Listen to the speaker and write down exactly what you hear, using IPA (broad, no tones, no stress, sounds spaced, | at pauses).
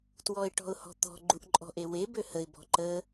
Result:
t w ɔ ɪ̯ ʈ ɔ̤ ʊ̯ h ɔ̤ t̪ ɔ̤ ɡ͡ǃ u ʔ ǃʼ ɔ̤ ʔ e w e b ø h ə ɪ̯ b ɔ̤ ǃ ə